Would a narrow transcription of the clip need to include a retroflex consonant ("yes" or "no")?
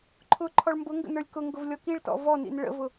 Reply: yes